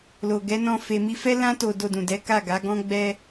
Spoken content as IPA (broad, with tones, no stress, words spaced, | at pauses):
lo˨ɡɛ˨˦nɔ̃˧ fe˧mi˦ fɛ˦lã˦to˧ do˧dũ˨dɛ˨˦ ka˦˨ɡa˨˦ɡɔ̃˦ ɡ͡bɛ˦